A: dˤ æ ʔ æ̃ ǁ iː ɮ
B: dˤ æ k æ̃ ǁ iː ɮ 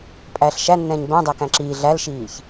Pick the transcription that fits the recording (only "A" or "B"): B